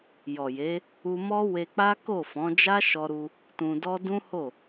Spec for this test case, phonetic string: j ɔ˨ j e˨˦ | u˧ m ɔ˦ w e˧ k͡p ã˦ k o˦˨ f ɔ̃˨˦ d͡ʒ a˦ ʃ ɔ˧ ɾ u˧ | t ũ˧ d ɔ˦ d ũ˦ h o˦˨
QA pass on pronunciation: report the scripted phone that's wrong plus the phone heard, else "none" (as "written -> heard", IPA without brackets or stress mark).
ã˦ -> a˦